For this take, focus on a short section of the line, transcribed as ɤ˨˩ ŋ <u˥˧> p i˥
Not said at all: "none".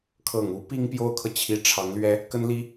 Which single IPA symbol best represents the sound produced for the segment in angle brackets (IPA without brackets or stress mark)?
u˧˥